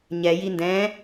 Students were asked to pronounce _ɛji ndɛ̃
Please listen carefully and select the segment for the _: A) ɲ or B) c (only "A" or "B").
A